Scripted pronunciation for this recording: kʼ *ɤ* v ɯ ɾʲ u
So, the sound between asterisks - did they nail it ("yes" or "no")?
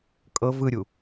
yes